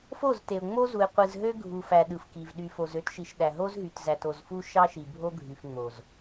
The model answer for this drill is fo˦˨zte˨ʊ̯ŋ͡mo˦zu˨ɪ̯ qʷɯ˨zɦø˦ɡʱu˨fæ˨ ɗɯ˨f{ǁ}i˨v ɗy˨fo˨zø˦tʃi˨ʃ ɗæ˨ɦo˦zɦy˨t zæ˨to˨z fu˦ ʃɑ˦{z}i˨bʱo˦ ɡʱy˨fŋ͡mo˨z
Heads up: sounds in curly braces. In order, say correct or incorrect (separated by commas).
incorrect, incorrect